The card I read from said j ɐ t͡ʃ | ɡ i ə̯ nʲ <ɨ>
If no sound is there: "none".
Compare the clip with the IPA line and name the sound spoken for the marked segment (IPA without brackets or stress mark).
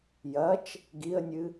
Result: ɨ